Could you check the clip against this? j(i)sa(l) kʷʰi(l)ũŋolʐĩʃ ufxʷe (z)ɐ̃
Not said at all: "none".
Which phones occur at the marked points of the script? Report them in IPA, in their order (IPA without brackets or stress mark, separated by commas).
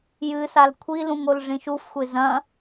ɨ, l, l, z